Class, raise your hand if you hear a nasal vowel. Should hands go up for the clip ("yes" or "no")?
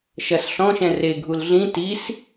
yes